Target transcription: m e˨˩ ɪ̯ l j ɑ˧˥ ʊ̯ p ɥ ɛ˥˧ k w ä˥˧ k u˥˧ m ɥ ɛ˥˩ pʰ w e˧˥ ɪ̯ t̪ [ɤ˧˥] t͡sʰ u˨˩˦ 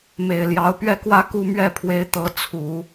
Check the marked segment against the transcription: correct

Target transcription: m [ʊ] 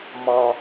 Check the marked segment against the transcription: incorrect: ɔ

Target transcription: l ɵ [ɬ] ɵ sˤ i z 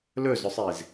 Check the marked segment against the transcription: incorrect: z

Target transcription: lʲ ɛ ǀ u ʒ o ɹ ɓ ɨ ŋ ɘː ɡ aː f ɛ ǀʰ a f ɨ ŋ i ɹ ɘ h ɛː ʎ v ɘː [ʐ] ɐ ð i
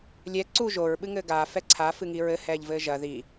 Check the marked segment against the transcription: incorrect: ʒ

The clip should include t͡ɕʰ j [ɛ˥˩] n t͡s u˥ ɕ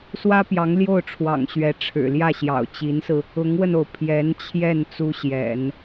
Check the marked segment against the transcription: correct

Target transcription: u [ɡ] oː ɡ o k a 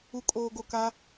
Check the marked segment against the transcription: incorrect: kʼ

